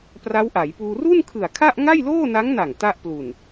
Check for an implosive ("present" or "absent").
absent